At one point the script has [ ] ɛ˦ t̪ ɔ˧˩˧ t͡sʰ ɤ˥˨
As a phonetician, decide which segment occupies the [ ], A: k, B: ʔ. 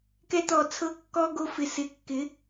A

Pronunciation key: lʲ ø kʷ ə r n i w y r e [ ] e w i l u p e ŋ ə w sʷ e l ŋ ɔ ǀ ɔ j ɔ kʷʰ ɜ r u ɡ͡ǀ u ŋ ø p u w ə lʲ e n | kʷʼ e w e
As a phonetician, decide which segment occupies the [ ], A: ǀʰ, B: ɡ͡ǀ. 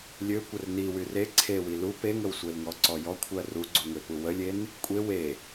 A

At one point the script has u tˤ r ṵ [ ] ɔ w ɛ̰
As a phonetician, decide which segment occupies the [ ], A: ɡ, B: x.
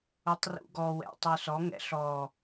A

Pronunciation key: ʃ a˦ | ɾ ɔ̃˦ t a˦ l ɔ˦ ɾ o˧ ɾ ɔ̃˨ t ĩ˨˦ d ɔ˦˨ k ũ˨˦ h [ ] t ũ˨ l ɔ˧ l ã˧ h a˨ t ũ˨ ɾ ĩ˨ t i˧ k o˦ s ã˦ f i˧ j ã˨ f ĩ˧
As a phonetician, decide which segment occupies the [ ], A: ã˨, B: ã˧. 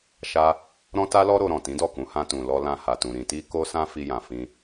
B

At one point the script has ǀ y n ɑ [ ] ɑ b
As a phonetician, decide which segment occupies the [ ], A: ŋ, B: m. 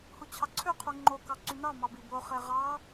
B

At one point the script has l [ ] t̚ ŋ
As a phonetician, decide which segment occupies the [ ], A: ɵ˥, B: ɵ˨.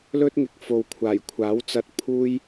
A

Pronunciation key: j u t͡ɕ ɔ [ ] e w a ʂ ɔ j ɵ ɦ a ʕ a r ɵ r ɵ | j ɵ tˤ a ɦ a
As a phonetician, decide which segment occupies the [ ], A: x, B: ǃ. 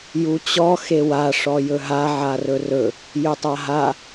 A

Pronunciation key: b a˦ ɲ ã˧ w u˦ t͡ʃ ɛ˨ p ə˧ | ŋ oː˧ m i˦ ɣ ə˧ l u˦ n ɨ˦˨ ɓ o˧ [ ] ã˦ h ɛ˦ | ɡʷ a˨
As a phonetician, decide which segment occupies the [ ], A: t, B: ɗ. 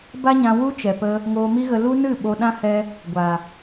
B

